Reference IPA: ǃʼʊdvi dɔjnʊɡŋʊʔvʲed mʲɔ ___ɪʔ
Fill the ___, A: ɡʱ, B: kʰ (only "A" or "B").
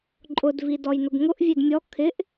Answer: B